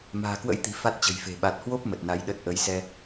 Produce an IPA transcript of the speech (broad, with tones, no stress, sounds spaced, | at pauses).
m a̤ː˨˩ k w ə̰˧˥ j t̪ i̤˨˩ f a˦˥ t̚ t͡ɕ ə̤˨˩ j f e̤˨˩ ɓ a˨˩ t̚ h w o˦˥ p̚ m ə˨˩ t̚ n a˨˦ j ɗ ə˦˥ t̚ ʔ ə˨˦ j s ɛ˧